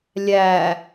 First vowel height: low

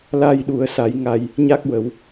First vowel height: low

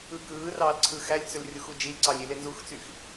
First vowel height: high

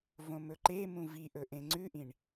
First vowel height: mid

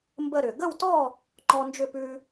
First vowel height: mid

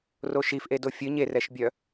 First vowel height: mid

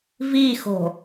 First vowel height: high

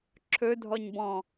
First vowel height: mid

